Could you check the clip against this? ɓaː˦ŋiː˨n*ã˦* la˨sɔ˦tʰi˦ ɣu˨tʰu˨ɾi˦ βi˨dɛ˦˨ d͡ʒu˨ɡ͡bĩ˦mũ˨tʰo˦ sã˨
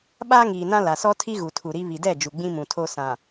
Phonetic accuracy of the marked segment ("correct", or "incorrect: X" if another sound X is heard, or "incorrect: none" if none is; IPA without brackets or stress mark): correct